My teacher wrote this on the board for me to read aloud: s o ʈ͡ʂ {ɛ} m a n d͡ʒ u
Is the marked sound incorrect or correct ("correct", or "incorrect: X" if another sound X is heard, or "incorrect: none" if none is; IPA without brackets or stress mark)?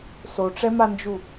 correct